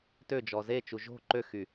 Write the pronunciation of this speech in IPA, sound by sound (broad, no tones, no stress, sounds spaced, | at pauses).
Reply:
t ø d͡ʒ ɔ z e t͡ʃ u ʒ o̤ ǃ ø x y